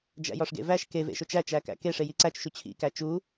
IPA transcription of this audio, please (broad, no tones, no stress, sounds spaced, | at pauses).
d͡ʒ æ̰ j ɒ ʂ ɡ ḛ v æ ʃ k e v ḛ ʃ o t͡ʃ æ t͡ʃ æ k æ̰ k e ʂ e j i ǀ æ t͡ʃ ʃ u t͡ɕʰ ḭ k æ t͡ʃ u